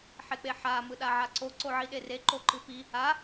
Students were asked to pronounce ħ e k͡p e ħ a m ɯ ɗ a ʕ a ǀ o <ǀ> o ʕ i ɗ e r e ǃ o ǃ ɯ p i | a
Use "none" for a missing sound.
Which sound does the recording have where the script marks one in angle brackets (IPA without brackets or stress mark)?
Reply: ǀ